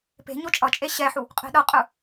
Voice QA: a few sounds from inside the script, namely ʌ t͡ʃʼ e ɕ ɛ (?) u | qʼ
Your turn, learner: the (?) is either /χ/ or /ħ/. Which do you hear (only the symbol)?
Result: ħ